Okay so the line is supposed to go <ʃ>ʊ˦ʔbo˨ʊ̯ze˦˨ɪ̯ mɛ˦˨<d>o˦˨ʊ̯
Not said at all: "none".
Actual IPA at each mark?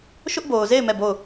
ʃ, b

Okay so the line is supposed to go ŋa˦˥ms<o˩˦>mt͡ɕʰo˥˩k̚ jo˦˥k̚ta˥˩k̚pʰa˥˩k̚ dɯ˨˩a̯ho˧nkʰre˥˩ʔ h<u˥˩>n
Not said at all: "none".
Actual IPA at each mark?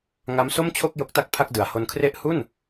o˥˩, u˥˩

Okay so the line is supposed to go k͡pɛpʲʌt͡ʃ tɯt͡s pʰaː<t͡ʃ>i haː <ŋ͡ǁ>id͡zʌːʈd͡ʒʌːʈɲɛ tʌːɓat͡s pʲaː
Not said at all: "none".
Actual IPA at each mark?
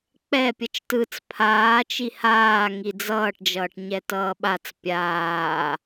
t͡ʃ, ŋ

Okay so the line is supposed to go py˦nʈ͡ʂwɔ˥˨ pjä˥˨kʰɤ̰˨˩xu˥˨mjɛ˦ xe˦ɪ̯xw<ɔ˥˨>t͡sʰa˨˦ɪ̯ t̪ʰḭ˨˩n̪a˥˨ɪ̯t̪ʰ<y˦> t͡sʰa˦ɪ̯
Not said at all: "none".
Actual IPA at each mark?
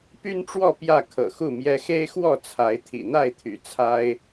ɔ˥˨, y̰˨˩

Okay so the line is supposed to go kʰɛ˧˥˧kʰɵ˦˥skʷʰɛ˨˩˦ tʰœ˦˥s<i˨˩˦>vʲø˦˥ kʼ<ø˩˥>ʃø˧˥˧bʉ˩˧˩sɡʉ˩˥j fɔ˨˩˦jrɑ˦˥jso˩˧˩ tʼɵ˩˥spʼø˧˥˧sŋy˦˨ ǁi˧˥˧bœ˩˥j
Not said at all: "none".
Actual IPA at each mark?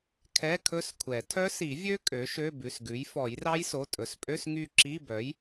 i˨˩˦, ø˩˥

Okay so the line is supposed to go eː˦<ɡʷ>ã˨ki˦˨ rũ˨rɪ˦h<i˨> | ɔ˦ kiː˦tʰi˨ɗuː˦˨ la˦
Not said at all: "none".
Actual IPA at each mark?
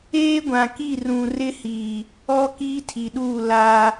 ɡʷ, i˨

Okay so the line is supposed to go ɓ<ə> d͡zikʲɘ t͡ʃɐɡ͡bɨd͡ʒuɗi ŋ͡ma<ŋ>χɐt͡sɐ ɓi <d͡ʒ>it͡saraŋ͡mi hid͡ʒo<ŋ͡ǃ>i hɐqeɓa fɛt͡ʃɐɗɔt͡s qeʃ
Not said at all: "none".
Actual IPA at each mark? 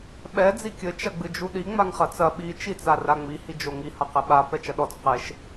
ɛ, ŋ, t͡ʃ, ŋ

